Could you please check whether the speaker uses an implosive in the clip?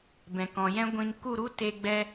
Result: no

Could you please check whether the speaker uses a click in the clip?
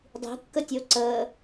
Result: yes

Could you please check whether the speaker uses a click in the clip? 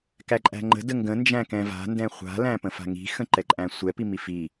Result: yes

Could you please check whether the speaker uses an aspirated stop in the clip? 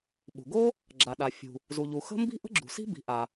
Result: no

